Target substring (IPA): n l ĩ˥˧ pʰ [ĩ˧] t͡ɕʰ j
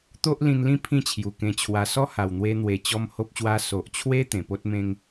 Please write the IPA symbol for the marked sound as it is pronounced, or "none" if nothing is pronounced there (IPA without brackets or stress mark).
ĩ˥˧